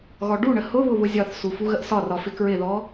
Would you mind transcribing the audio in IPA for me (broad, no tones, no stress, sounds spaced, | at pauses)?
ɣ ɔ ɖ u ɳ ə h ʊ β ʊ β ʊ zʲ ɒ θ s u f u ɣ ə ʔ s ɒ r ɒ f ɪ k ɹ ɪ ð ɔ